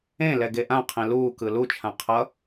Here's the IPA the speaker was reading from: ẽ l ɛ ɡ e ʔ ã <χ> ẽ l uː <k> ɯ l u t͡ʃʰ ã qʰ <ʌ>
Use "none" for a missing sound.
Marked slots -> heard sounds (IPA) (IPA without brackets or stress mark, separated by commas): qʰ, k, ʌ